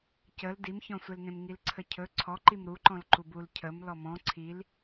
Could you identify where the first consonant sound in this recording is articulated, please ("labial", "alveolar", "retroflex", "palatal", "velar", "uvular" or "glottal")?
palatal